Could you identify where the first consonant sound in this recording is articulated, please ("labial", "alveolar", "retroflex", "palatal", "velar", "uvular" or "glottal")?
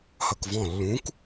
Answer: glottal